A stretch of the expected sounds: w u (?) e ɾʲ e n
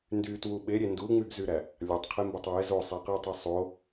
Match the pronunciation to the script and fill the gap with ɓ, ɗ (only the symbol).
ɓ